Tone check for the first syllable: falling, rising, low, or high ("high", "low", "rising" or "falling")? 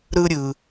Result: high